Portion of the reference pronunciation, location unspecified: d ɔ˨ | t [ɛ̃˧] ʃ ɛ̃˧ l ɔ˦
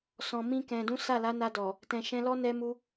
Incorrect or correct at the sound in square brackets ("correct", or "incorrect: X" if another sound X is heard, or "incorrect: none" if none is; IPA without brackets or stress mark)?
incorrect: ɛ̃˨